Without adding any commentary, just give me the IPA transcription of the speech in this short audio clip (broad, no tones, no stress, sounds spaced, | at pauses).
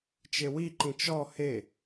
t͡ʃ e w i ǃ ĩ t͡ʃ ɔ h e